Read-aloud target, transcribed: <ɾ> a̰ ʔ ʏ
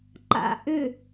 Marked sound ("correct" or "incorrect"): incorrect